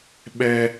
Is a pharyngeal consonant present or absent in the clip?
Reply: absent